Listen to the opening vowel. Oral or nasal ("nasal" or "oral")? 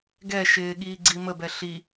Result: oral